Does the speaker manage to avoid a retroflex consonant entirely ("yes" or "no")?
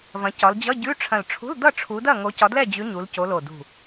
no